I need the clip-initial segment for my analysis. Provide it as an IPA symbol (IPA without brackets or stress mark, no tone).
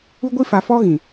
u